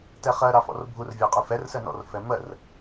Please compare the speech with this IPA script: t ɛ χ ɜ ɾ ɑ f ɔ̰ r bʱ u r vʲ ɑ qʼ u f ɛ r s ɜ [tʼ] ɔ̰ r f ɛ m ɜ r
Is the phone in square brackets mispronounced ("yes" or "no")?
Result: yes